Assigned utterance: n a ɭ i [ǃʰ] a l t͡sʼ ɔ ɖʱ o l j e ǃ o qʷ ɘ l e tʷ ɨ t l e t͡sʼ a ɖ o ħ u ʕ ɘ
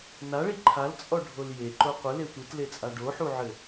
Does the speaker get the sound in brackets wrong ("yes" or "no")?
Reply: no